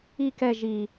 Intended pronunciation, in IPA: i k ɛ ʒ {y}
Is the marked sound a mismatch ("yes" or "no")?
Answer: yes